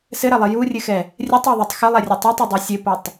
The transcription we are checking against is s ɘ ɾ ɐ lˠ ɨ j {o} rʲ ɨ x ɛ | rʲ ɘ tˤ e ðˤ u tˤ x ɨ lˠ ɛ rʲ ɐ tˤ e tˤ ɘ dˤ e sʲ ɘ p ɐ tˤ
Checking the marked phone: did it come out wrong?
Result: yes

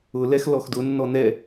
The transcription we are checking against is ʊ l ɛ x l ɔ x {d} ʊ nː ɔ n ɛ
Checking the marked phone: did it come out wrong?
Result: no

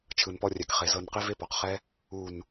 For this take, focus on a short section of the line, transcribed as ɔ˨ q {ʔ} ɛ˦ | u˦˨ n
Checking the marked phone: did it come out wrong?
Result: yes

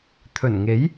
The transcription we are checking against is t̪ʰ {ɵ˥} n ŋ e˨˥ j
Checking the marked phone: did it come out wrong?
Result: yes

